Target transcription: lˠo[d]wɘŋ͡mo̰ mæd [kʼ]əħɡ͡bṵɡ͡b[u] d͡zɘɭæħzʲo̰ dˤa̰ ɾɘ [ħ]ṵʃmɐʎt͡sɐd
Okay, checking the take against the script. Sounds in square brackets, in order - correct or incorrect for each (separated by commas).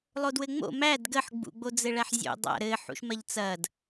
correct, incorrect, incorrect, correct